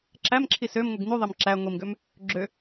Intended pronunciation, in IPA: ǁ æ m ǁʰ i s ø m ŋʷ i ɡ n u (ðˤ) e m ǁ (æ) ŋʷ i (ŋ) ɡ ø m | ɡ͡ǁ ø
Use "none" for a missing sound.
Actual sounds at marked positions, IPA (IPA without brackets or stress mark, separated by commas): ðˤ, æ, m